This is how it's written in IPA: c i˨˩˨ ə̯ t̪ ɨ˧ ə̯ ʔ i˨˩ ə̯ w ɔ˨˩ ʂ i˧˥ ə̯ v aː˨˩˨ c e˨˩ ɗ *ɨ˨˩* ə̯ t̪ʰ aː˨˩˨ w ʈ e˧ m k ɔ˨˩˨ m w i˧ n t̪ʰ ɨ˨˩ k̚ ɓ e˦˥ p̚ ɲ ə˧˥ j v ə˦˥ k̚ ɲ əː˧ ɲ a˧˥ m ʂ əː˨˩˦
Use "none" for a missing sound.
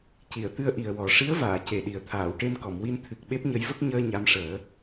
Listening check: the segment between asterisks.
i˨˩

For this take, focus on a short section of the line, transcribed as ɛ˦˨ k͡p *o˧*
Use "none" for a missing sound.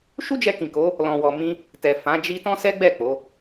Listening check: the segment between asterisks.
o˨˦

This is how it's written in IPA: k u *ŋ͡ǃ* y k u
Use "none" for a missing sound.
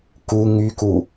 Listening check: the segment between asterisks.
ŋ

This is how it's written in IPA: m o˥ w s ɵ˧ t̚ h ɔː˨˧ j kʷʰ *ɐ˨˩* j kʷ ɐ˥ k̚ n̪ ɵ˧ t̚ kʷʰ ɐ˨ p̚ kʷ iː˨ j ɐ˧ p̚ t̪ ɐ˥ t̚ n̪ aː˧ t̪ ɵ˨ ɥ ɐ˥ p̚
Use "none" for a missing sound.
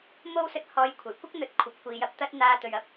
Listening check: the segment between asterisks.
ɐ˨˩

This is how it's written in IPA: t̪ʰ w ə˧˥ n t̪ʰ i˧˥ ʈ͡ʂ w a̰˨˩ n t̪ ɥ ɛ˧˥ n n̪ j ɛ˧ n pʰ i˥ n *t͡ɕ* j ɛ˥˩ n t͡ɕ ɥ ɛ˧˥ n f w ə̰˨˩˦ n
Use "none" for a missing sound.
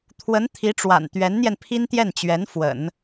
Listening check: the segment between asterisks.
t̪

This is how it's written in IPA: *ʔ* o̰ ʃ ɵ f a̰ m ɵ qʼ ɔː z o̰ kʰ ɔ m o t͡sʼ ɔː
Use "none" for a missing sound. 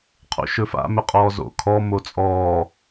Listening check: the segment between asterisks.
qʰ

